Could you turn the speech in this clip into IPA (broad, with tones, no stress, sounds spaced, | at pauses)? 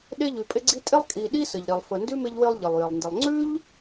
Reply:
ɗ e˦ ʎ ʉ˨ pʼ ɪ˦ ɡ͡ǀ i˦ tʼ e˦ lˠ kʼ i˨ ɗ i˦ s ə˩ ʎ ɾ i˩ lˠ f ə˨ n d ʉ˥ m ɪ˦ ʎ w ɪ˦ lˠ ʎ ɪ˩ lˠ j ɪ˩ lˠ n d ɪ˨ lˠ ŋ͡ǀ ʉ˥ ʎ